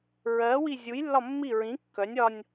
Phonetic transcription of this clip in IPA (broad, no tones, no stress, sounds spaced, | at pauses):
ɹ ɜ w i zʲ u j lː ɒ mː i ɹ ĩ kː œ nʲ ɒ nʲ